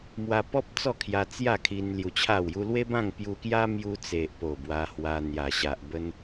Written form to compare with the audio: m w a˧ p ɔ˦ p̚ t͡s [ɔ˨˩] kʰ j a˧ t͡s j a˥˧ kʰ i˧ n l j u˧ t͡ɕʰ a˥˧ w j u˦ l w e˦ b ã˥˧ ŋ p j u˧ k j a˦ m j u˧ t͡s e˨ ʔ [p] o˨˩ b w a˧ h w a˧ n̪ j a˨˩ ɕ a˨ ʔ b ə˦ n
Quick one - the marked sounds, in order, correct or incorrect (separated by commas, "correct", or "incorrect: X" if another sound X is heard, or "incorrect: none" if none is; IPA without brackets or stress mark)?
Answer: incorrect: ɔ˥˧, correct